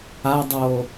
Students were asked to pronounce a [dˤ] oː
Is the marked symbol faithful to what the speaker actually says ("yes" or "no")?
yes